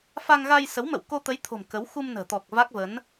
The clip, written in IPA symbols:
f a˧ ŋ ɣ a˧ j s ə˨˦ w m ə̰˧˨ w k o˧ t̪ ə˨˦ j t̪ʰ o̤˨˩ m k ə˨˦ w x u˧ m n ə̤ː˨˩ t̪ ɔ˨˩ k̚ v a˦˥ k̚ v ə˨˦ n

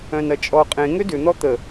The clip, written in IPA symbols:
œ̃ n ɐ t͡ʃʼ ɔ qʼ ẽ ŋ ø d ʏ n̪ ɔ t̪ ə

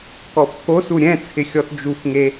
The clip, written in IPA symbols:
k ɔ f k o s u ɾʲ ɛ̃ t͡sʰ ɪ xʲ ɔ t d͡ʒ u f ŋ e

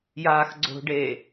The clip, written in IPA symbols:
j aː x ɡ͡ǀ o̤ ɖ eː

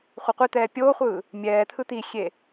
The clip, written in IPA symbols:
χʷ e qʷ i t̪ ɛː pʲ oː χʷ ɯː | mʲ ɛː t̪ʰ ɯ t̪ i xʲ e

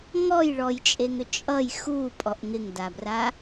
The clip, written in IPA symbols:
ŋ ɔ j ɭ ɔ j t͡ʃʼ e ŋ ʏ t͡ʃʼ ʌ j x u pʼ ɔ ʔ ŋ ɪ ŋ d a b r a

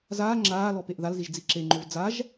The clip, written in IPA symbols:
z aː ŋ͡ǁ aː l ɔ p e ʔ ð a l z i ʒ d͡z i ǁ e ŋ͡ǃ o v d͡z a ʒ

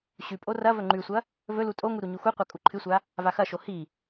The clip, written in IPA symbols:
ɕ ʉ pʼ o r ɐ v ɵ ŋ͡ǃ ʉ sʷ ɐ | v ɵ l u tʼ o ŋ u ɾ u ɲ u x u qʷ a kʼ u ǃʰ ɨ sʷ a | v a x ɐ ʃ o h i

